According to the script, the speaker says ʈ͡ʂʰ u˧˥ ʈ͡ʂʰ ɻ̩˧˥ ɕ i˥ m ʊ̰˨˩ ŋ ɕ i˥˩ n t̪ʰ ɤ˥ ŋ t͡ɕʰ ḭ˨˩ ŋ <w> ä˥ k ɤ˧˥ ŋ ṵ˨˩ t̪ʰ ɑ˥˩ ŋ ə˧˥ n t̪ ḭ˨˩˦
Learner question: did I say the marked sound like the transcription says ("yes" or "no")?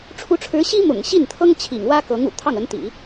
yes